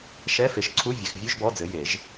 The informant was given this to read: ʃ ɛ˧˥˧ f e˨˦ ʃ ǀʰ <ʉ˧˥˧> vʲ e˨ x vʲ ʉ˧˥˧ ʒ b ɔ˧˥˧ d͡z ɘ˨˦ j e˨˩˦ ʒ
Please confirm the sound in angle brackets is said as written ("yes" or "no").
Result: no